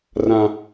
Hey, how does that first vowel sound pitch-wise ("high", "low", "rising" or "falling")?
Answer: high